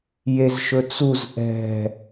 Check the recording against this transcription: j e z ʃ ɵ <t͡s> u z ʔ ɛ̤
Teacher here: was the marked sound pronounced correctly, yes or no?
yes